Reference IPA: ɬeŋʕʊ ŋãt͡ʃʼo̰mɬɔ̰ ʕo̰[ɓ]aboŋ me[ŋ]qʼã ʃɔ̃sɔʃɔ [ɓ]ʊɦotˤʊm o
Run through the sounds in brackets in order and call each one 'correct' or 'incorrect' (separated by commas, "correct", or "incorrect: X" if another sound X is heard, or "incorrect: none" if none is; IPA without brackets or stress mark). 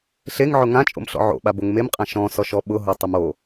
correct, incorrect: m, correct